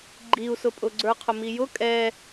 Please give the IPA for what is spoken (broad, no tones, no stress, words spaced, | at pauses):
ɡ͡ǃiu̯sʊpʼʊ ɡ͡ǀə˞qʰʊmijʊ kʼɛ